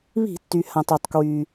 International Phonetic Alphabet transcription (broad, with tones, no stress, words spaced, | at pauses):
βi̤˧˩˧tːy˩ hã˩tˤœ˩tˤkwy˩